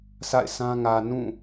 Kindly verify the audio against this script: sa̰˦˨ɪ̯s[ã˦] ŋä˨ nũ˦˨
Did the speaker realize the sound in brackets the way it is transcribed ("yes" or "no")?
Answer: yes